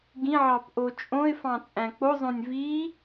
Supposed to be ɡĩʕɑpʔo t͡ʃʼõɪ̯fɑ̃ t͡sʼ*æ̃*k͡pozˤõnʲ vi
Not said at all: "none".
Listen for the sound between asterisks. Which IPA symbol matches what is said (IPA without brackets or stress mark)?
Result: æ̃